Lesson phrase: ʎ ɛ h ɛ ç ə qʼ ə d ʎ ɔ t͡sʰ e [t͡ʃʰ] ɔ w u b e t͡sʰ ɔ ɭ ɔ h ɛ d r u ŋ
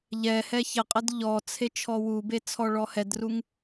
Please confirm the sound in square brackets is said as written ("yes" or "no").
yes